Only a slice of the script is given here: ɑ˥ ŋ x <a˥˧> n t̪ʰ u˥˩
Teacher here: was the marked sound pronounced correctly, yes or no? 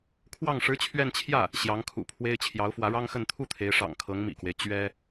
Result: no